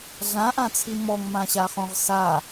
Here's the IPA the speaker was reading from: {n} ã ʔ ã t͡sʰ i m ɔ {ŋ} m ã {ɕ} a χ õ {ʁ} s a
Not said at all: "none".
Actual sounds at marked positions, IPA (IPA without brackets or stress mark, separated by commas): ɮ, ŋ, ɕ, ʁ